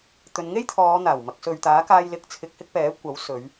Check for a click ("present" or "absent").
absent